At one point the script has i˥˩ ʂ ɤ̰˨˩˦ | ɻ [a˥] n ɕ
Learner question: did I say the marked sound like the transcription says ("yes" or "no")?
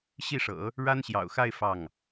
yes